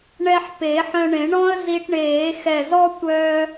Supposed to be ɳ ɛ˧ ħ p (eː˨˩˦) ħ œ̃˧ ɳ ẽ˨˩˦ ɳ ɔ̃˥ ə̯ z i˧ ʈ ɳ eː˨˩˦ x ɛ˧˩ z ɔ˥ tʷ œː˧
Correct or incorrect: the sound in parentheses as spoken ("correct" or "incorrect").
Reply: incorrect